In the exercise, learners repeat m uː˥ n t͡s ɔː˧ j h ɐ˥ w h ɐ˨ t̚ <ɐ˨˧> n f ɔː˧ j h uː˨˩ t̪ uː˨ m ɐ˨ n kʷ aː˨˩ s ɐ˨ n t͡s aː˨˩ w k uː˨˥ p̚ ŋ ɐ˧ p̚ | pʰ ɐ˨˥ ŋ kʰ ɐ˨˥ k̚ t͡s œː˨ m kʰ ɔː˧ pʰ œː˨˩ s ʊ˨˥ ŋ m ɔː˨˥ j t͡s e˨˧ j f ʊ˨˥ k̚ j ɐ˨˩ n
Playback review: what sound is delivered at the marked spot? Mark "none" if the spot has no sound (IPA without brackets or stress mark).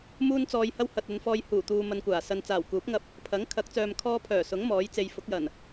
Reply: ɐ˨˧